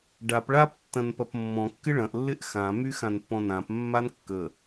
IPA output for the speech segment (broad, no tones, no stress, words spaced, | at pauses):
ɖap ɭap tːɐ̃npɐpmːɔ̃ kːɪɭɐ̃ʔ lːɪʔxã myxãnpːɔ̃nãp mːankːə